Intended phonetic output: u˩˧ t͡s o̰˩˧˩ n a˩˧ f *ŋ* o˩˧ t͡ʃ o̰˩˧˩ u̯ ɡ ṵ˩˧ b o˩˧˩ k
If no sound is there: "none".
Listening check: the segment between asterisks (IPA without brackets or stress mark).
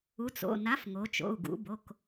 ŋ